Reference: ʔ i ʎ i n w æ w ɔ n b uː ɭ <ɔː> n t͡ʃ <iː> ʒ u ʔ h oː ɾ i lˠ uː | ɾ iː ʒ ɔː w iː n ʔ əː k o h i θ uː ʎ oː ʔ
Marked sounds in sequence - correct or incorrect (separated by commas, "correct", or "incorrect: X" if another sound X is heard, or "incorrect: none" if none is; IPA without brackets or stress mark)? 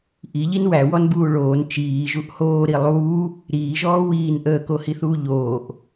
incorrect: oː, correct